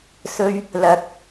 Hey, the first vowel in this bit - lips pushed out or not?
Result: yes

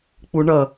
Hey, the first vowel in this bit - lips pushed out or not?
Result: yes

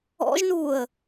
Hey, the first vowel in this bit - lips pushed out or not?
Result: yes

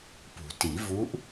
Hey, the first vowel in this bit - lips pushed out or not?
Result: yes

